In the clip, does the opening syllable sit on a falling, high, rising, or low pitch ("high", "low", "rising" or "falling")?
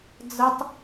high